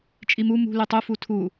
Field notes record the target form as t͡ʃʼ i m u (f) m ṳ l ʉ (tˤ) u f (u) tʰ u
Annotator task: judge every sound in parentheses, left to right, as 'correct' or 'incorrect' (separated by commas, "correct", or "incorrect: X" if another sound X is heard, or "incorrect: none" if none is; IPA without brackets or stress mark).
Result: incorrect: none, correct, correct